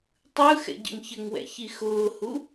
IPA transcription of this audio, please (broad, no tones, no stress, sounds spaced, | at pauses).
tˤ ɯ x ɛ̰ ɟ ə̰ ŋ ç ə ŋ w ɛ̰ ç i x ʊː h u